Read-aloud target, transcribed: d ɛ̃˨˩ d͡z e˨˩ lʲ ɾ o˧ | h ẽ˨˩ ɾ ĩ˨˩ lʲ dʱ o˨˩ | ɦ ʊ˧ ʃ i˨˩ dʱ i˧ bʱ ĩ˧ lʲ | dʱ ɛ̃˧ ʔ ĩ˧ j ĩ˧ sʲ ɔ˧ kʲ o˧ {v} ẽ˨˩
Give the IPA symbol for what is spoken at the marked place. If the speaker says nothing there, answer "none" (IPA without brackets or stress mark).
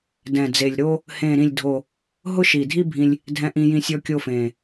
f